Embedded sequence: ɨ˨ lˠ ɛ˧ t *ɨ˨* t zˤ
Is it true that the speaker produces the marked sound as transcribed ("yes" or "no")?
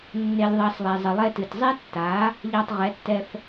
yes